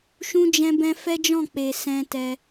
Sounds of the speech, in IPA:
ʃ ũ˦ d͡ʒ ɛ̃˦ b ɛ̃˦ f ɛ˦ d͡ʒ ɔ̃˦˨ k͡p e˨ s ɛ̃˧ t ɛ˧

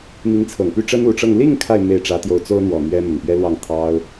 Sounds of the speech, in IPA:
m i˧˥ ŋ t͡sʰ ɤ˨˩ ŋ p y˥ ʈ͡ʂ ə˥ n u˨˩ ʈ͡ʂ ɤ˥˧ ŋ l i˥˧ ŋ kʰ a˥˧ ɪ̯ m e˥˩ ɪ̯ ʈ͡ʂ ä˧˥ t̪ j o˧˥ ʊ̯ t͡s o˥ ʊ̯ n̪ w ɔ˨˩ n̪ ɥ ɛ˥ m ə˨˩ n p ɥ ɛ˥ l w ɑ˥˩ ŋ t̪ʰ ɑ˥ ʊ̯

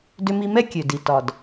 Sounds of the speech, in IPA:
d ʏ˥ m i˥ m ɛ˥ kʲ ø˩ d i˩ t ɒ˩ d

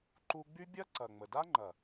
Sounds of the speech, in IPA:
ǃ u˧ ɡ͡b y˦ bʲ ɐ˦ ǀ ɐ˨ ŋ͡m ə˨ d a˦ ŋ͡ǃ ɐ˨

